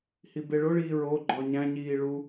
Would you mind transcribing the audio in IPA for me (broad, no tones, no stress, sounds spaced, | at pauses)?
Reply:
h i b e ɭ o ɭ iː ɹ o ɡ͡ǃ ɒ ɲ æ̃ ɲ iː ɭ u